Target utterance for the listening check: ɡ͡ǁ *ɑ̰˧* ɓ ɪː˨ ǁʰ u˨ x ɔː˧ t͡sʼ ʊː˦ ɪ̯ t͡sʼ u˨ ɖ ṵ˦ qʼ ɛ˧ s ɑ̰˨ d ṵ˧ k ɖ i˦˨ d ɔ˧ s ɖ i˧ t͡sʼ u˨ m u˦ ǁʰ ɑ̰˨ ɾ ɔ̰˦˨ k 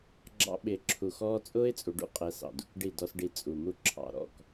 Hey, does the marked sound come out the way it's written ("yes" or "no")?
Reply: yes